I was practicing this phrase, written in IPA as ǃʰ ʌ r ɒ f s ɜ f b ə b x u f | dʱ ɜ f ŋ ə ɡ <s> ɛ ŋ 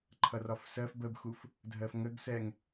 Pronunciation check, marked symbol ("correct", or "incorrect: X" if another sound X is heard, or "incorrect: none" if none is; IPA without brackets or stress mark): correct